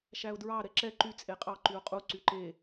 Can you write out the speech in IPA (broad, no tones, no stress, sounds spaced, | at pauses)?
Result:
ʃ æ ʊ̯ d ɹ ɑ ɾ ɛ ǁ ɛ ǃ y t͡sʼ e qʼ ɑ ǃ y ʊ̯ qʼ u ǀ y ǃ e